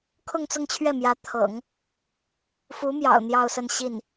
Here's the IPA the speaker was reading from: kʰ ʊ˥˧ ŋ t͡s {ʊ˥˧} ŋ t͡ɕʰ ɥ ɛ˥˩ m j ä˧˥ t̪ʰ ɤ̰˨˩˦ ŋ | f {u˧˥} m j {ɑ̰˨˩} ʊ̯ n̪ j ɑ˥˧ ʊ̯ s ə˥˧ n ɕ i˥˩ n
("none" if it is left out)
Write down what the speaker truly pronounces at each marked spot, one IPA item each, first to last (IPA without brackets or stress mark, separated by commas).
ʊ˥˧, u˧˥, ɑ̰˨˩